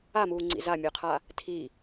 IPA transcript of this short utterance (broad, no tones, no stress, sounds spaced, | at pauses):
a m uː ŋ͡ǀ ḭ z a mʲ ø qʰ a | tʰ i